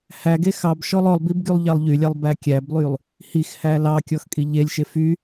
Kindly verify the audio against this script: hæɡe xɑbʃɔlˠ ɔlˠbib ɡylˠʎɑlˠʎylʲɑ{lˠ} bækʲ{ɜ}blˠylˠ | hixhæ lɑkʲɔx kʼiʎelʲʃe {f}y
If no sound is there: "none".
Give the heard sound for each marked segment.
lˠ, æ, f

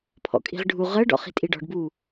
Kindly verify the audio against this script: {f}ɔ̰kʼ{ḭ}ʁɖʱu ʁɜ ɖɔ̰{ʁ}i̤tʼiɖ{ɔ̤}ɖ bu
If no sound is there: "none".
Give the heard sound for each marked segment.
pʰ, i̤, χ, ɔ̤

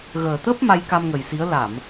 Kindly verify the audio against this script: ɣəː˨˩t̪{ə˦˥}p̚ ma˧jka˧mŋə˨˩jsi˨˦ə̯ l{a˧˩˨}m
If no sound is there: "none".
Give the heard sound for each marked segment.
ə˦˥, a˧˩˨

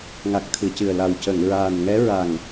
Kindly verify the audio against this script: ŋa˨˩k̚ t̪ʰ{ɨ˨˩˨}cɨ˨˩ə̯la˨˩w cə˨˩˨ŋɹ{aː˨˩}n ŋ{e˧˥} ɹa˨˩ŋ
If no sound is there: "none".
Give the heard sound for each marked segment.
ɨ˨˩˨, aː˨˩, ɛ˧˥

